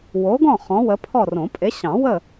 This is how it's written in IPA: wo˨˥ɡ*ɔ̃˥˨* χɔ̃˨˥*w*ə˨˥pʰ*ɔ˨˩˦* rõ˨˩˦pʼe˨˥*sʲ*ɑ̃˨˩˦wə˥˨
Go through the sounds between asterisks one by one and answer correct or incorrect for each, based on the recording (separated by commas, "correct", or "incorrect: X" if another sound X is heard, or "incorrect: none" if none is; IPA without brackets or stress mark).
correct, correct, incorrect: ɔ˥˨, incorrect: ɕ